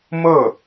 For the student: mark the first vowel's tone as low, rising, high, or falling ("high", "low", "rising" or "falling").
falling